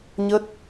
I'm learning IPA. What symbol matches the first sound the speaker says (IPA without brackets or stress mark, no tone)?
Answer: ɲ